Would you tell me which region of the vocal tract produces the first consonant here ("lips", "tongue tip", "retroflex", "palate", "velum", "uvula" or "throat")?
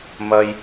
lips